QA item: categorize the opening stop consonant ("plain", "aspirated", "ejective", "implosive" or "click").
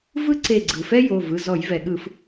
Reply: click